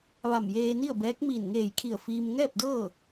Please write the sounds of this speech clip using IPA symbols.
ʋa˧˩mjeː˧ni˥˨ə̯bɛː˧˥k̚ miː˧˩nŋeː˧˩jkʰi˧˩ə̯ fiː˧m ŋɛː˥˨p̚dɤː˥˨

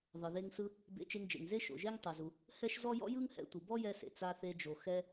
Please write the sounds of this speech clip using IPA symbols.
ðˤɯ˩ðe˧ŋsɯ˧ | bḛ˧t͡ʃe˧ŋd͡ʒḛ˩ŋ ze˥ ʃo̰˩ʒe˥ŋ tˤɛ˩zu˩ | hɛ˥ʃzɔ˥ jɔ̰˥ jɯ˥ŋhɛ̰˧ tʷɯ˩ bɔ˥jɛ˧sḛ˩ t͡sa˧θe˧d͡ʒo˩ xɛ˧

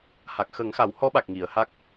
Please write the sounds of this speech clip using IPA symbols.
ha˨˩k̚xə˨˩˦ŋxa˨˩˦w hɔ˧˥ɓa˨˩k̚ ŋi˨˩˨ə̯ha˦˥k̚

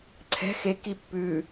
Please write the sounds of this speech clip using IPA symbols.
ǀʰɛ̤ xeki pːʉ

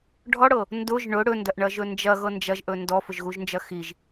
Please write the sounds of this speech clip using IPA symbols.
ɖʱɔɽɤ | ndʊʒ ɳʊ ɽɵndɐʔɳɐʒɵ nd͡ʒɐɣɤ nd͡ʒɐʒʔɵ ndɔfʊʒɣuʒnd͡ʒɐ xiʒ

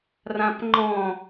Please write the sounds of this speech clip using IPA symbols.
rãpŋ͡ǃɔ̃

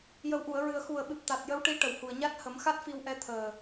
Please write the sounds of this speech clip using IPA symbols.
jə˨˩wʔu˨˩˨ə̯ɹɨ˨˩ə̯ xu˨˩ə̯ɓɨ˨˩p̚ t̪a˨˩t̚jə˧˥wʈi˧˥ ʈə˨˩whu˨˩ə̯ɲa˦˥t̚ hə˨˩˦mxa˦˥t̚fi˧wʔɛ˧ t̪ʰəː˨˩

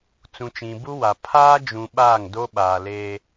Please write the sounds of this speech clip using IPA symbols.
t͡sũ˨t͡ʃĩ˨bu˦wa˨ pʰaː˦ d͡ʒũ˨ ɓaː˦˨ŋdo˦ɓaː˨ leː˦

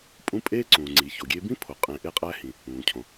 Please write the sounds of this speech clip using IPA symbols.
pʼũ˦pʼeː˥ ǀũː˩ ŋ͡ǀi˩ço˩ɡʲeː˥ bĩ˥pʰo˩ qʼẽ˨ʔe˦qʼæ˦hĩ˩ | ũː˩cʰõ˩

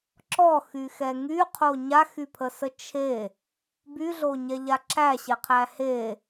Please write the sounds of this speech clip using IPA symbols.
ǁɔxyxɛ ŋyqʰo ɲaxypʰəsə t͡ʃʰe | byɮoɲɛʎa ǁæɕeqʰæ he

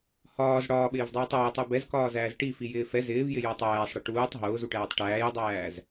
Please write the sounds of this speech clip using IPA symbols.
hɒːz ɽɒːɓɪːvdˤuːtˤ ʊːtˤu bɛzkɒːzæːz ʈifijɪː fɛ zɪːvjɪjʊːtˤ æːsˤɽɪ ʈuːtˤ ɦʊːzuʈæːtˤ ʈæːjdˤæːz

